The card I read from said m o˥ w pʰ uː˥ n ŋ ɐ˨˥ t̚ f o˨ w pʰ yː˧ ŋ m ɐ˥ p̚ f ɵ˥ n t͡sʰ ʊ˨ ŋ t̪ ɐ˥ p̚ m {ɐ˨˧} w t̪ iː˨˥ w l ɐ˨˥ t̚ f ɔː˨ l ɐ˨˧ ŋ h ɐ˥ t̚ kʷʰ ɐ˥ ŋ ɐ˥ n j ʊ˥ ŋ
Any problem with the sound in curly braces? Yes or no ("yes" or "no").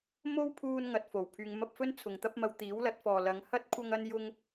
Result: yes